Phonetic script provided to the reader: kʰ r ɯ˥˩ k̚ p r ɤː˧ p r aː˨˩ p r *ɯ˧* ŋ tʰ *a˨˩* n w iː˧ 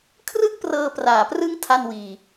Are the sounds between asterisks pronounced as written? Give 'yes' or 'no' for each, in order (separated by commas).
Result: no, no